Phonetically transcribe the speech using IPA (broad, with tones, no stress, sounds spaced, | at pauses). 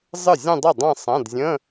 zˤ ɨ˥˩ zʲ ə̃˥˧ dˤ i˥˩ dˤ ã˥˧ sˤ ã˧˥˧ d zʲ ə̃˧˥˧